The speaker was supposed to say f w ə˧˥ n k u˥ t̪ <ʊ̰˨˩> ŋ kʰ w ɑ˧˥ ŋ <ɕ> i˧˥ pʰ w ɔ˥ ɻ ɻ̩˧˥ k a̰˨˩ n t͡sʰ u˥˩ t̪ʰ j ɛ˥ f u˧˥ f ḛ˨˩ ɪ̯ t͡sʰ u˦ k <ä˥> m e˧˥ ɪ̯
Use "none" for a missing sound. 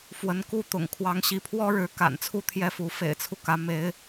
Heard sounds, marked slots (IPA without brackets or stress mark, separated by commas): ʊ̰˨˩, ɕ, ä˧˥